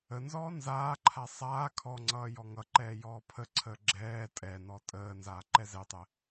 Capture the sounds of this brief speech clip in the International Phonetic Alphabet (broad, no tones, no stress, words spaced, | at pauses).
ənzɔː nzaːǃʰa sˤaː kʰɔŋ͡ǀʌː jɔŋʌǃɛː jɔːpʰəǀʰəː ɡ͡ǁɛː tʼɛnɔ tʼəː nzaːǃɛzɛtˤɛ